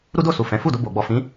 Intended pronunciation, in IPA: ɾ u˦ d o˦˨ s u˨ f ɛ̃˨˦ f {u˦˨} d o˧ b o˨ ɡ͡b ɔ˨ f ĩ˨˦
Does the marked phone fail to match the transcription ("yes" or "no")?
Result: no